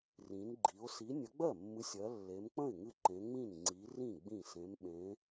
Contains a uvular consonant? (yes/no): no